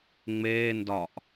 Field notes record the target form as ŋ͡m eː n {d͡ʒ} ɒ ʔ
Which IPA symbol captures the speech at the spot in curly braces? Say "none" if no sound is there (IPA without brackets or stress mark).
d